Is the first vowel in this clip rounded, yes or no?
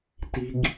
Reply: no